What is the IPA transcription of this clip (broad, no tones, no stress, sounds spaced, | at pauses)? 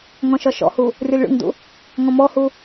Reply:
ŋ ɔ̃ ʃ ɒ ʃ ɔ̰ h u | rʲ ɔ lʲ ɭ ṵ ŋ d ṵ | ŋ ɔ̃ m ɔ h u